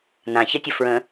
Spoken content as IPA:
n ã ç ə tʲ ə f ɹ ə̃

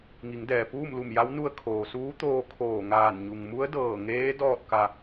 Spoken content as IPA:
ŋ i˩˧ ŋ d ɛː˩ p uː˥˨ m l u˧˩ m j a˧˥ w n u˧ ə̯ kʰ oː˩ s uː˧˥ t̪ oː˧ kʰ oː˧˩ ŋ aː˧˩ n ɲ u˩ ŋ m u˧˥ ə̯ d ɤː˧˩ ŋ eː˧˥ d ɔː˥˨ t̚ k a˧

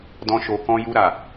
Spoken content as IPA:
d ɔ̃˧ ʃ o˨ k ɔ̃˧ j u˧ ɾ a˨

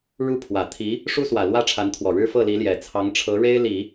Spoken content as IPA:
ɻ u˥˩ pʰ w ä˨˩ t̪ʰ i˧˥ | ʂ u˥ s w ä˨˩ l w ä˥˩ ʈ͡ʂʰ a˧˥ n t̪ʰ w ɔ˨˩ ɻ ɻ̩˥ f ɤ˥˩ l i˧˥ l j ɛ˨˩ t͡sʰ ɑ˧˥ ŋ ʈ͡ʂʰ ɤ˧˥ ɻ e˥ ɪ̯ l i˨˩˦

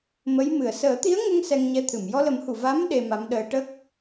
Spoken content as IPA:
m ə˧˥ j m ɨ˨˩ ə̯ s əː˨˩˦ t̪ i˧˥ ə̯ ŋ ə˧ ŋ s ɛ˧ ŋ ɲ ɛ˧˥ t̪ʰ ɨ˨˩˨ m j ɔ˧ l ə˨˩˦ m h u˨˩˨ v a˧˥ m ɗ e˧ m a˧˥ m ɗ əː˧˥ ʈ ə˦˥ k̚

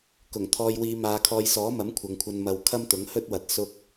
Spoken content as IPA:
k ʊ˨˩ ŋ t̪ʰ ɔː˨ j w iː˨˧ m aː˨˧ kʰ ɔː˧ j s ɔː˨˥ m ɐ˨˥ m kʷʰ ɐ˨ ŋ kʷʰ ɐ˧ n m ɐ˧ w kʰ ɐ˥ m t̪ ʊ˨˥ ŋ h ɵ˥ t̚ w ɐ˨˥ t̚ s ʊ˥ k̚

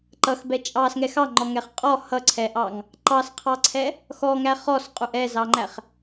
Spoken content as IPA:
ǃ ʌ x b ɛ t͡ʃʼ ɑ s ŋ ɛ x ɑ ŋ͡ǃ ɔ ŋ ɛ χ qʼ ɔ h ʌ ǀʰ ɛ ʔ ɑ ŋ | ǃ ɑ s qʰ ɑ ǀʰ ɛ | x ɔ ŋ æ χ ɔ s qʼ u ʔ ɛ z ɑ ŋ͡ǃ æ χ

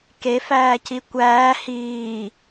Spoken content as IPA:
k e f æː c i kʷ æː h iː

